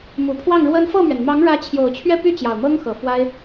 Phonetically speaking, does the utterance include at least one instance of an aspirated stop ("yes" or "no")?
yes